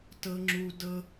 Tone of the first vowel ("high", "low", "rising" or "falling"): high